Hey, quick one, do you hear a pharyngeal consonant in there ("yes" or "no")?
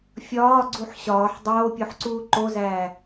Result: yes